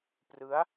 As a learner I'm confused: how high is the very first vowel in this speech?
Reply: high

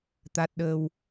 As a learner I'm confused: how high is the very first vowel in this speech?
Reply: low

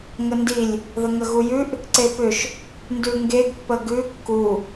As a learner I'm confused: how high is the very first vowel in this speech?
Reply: mid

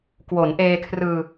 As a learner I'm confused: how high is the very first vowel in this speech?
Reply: mid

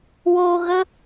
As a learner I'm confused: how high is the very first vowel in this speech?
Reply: mid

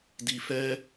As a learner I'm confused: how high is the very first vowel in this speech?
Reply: high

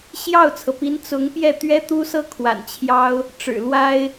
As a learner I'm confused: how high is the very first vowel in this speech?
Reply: low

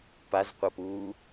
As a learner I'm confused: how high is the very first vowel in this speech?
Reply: low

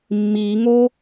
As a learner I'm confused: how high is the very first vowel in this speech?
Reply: high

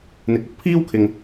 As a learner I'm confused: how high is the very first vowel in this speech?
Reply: high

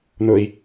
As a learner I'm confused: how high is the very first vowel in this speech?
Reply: high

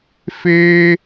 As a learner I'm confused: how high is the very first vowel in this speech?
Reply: mid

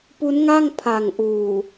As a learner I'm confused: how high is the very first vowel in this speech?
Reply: high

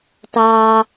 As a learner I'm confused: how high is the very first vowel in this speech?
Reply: low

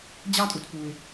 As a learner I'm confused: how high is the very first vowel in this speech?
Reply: low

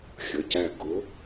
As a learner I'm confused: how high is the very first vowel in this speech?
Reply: mid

